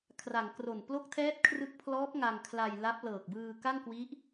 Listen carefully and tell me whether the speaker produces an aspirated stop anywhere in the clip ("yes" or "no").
yes